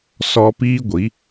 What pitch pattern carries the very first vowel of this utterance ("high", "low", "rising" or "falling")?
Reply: high